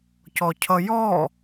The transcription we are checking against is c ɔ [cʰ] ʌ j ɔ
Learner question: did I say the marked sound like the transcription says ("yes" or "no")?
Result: yes